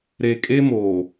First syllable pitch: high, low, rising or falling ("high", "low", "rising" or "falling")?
low